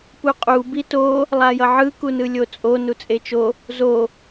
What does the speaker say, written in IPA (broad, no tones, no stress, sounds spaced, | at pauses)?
p u qʼ u b i t o | lˠ a j ʌ ʕ ɯ k u n ɯ lʲ o t͡sʼ o n u t͡sʼ e t͡ʃ o | z o